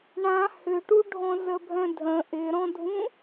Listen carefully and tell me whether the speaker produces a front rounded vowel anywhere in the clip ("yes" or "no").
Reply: yes